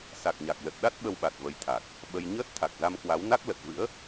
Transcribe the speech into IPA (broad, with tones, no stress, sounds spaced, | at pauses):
s a˨˩ k̚ ɲ a˨˩ k̚ l ə˨˩ t̚ ɗ a˦˥ t̚ ɓ ə˧ w ɓ a˨˩ t̚ v ə˨˦ j t̪ʰ a˨˩ k̚ | ɓ ə˧ j ɲ əː˦˥ t̚ t̪ʰ a˨˩ k̚ z a˧ m k w a˨˦ w n a˦˥ k̚ l ə˨˩ t̚ v ɨ̰˧˥ ə̯